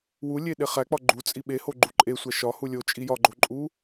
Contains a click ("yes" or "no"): yes